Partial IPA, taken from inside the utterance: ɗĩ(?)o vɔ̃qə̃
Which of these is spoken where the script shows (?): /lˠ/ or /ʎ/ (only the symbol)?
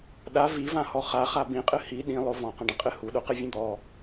lˠ